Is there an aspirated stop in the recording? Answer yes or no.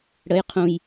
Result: yes